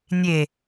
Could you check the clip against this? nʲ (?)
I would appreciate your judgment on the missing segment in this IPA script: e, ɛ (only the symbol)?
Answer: e